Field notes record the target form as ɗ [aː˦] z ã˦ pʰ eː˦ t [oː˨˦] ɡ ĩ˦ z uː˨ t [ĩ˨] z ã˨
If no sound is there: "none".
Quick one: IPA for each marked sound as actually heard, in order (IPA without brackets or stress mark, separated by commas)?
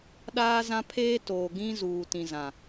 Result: aː˦, oː˨, ĩ˨